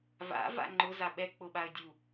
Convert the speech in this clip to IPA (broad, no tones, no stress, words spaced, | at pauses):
va̰ va̰ŋ͡ǃʊza ɓɛ k͡pʊɓaə̯ dʲu